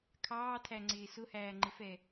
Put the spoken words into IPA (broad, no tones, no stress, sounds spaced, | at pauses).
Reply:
kʰ ɑː tʰ æ ŋ͡ǀ ɪː s ʊ h æː ŋ͡ǃ ɪ f ɛ